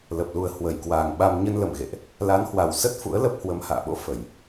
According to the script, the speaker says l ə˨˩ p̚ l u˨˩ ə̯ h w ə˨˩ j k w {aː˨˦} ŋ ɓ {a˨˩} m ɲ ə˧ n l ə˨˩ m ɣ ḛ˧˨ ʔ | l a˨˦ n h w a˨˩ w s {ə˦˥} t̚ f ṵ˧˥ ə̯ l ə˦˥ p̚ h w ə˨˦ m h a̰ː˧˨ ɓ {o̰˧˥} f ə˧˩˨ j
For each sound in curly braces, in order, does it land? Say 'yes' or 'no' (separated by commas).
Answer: no, no, yes, yes